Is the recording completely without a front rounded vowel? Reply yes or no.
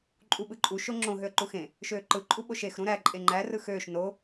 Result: no